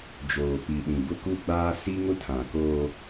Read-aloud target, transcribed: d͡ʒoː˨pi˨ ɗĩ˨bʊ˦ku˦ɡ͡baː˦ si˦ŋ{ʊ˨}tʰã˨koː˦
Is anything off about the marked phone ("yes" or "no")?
yes